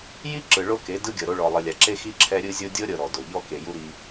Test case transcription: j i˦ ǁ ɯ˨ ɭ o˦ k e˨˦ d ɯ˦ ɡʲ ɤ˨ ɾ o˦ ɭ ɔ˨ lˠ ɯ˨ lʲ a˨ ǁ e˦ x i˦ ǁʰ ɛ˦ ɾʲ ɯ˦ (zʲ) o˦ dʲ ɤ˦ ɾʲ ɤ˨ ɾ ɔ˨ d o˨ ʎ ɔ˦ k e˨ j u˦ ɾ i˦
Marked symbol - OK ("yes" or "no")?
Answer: yes